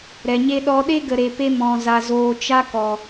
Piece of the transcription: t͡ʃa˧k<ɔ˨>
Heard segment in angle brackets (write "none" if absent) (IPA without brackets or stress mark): ɔ˨